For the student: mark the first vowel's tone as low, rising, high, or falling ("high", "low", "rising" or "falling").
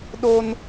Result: high